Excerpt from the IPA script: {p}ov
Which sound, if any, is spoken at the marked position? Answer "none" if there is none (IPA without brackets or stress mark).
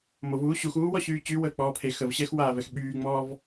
m